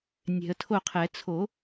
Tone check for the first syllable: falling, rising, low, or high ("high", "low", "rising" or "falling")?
low